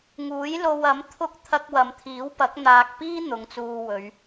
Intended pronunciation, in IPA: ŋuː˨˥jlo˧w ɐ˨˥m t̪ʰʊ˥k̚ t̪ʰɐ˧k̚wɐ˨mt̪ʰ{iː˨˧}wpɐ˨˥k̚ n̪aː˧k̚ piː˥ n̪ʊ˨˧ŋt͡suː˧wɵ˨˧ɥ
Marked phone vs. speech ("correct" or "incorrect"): incorrect